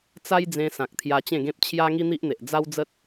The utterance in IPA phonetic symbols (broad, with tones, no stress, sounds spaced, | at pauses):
t͡s a˦ j d͡z ẽ˧ s ã˨ k̚ t̪ʰ j a˧ t͡ɕ ẽ˥˧ ɡ ẽ˦ p̚ t͡ɕʰ j a˦ ŋ i˦ n̪ i˦ ʔ n̪ e˨ ʔ d͡z a˦ w d͡z ə˦ t̚